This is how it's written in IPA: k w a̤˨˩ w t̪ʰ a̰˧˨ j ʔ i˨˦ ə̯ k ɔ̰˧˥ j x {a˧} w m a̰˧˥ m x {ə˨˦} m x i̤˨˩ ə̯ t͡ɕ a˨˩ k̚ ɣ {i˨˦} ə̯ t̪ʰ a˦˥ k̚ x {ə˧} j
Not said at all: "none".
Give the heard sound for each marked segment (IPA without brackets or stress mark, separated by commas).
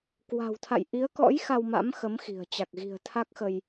a˧, ə˨˦, i̤˨˩, ə˧